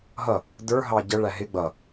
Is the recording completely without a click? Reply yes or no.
yes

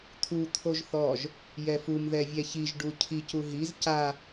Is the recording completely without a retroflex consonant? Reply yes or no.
no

